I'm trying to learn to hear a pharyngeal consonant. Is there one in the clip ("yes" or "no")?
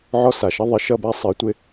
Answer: yes